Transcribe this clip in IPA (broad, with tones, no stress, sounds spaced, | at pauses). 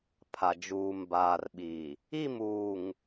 pʰ a˨ d͡ʒ uː˨ m b aː˨ r ɓ i˨ | i˦˨ m uː˨ ŋ